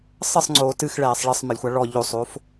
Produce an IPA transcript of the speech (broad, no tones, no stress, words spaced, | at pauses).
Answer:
sˤɘsˤŋ͡ǀoː tɨxɭɛːsˤ ɭɘsˤmɛlʲxʷa ɭɔ ʎosˤof